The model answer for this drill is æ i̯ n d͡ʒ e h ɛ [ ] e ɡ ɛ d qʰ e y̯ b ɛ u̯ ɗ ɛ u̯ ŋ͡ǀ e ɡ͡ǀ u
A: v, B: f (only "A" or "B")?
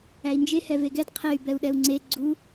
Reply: A